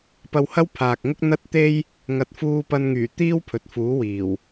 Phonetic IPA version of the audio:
p ɐ˧ w h ɐ˥ w pʰ aː˨ k̚ ŋ ʊ˥ k̚ n̪ ɐ˥ t̚ t̪ e˥ j | ŋ ɐ˨ t̚ f uː˧ p ɐ˧ n ŋ yː˨˩ t̪ iː˥ w pʰ ɵ˨ t̚ f uː˨˥ w iː˨˩ w

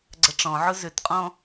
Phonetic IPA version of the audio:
ɡ͡ǀ ɐ ʈ͡ʂ ɔ̃ ʕ ʊ z ʏ t qʼ ɔ̃

